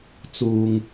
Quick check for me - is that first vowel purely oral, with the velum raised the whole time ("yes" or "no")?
yes